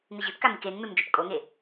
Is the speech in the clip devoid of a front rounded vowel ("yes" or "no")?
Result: yes